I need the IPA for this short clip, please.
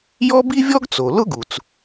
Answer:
j ɔ˥ b i˥ vʲ ɔ˥ ɡ t͡s o˩ l ʊ˥ ɡ u˩ t͡s

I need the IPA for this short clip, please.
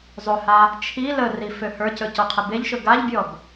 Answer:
zˤ ɵ h a | t͡ʃʰ i l ə r i f ø h ə˞ c ɵ c ɔ qʰ ə b e ʎ ʃ ɵ ɡ a ʎ bʲ ɔ b

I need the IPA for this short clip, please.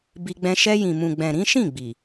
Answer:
b i˧ ɡ͡b ɛ̃˧ ʃ ɛ˧ j ĩ˨ m ũ˨ ɡ͡b ɛ̃˨ ɾ ĩ˨˦ ʃ ĩ˦˨ ɡ͡b i˨

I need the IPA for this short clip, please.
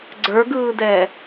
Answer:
ɡ͡ǀ ə˞ ɡ ɯː d ɛː

